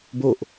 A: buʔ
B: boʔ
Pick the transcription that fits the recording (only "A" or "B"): B